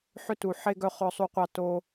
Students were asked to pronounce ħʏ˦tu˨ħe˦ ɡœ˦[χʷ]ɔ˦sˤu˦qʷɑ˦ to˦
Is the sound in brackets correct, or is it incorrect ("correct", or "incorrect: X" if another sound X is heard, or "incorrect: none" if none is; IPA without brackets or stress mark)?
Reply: incorrect: χ